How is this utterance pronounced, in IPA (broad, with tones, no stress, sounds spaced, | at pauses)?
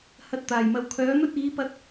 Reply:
h ɐ˧ t̚ t̪ aː˨˩ j m ɐ˨ w kʰ œː˨˥ n̪ ɵ˥ t̚ iː˨˥ p ɐ˧ t̚